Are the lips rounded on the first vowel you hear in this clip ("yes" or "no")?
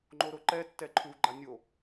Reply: yes